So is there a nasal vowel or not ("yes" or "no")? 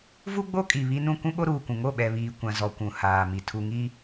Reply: yes